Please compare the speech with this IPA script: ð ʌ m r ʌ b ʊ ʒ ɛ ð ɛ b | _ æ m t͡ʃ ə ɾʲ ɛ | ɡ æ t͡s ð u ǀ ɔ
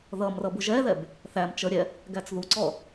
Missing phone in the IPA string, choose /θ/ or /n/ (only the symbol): θ